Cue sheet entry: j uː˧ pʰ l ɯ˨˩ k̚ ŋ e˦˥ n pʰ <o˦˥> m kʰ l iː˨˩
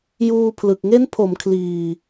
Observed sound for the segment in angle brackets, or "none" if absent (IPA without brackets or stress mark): o˩˦